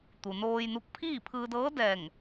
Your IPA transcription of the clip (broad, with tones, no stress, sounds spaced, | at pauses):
t̪ u˩ n oː˧ j n u˧ k̚ pʰ iː˥˨ pʰ ɯː˧ d ɤː˧˥ d ɛː˧˩ ŋ